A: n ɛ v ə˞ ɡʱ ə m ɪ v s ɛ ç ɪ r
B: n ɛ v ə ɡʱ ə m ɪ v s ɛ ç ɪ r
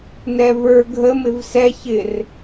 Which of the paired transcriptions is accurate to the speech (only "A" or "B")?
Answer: A